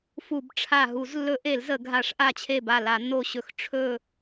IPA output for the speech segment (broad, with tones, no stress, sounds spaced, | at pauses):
f u˧˩˧ b ʈ͡ʂʰ a˧˩ ɦ u˧˩˧ z lː ɵ˧˩˧ ʔ e˧˩˧ l z ə˧˩˧ ɡʱ a˧˩˧ ʂ ʔ a˧˩ t͡ɕʰ e˧˩ b a˧˩ l a˧˩˧ nː o˧˩ ɕ ɵ˧˩˧ x ʈ͡ʂʰ ɵ˧˩